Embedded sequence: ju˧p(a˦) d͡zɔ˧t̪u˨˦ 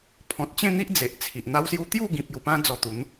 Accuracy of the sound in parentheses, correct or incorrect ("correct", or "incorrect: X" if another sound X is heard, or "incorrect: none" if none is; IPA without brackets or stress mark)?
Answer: incorrect: ã˦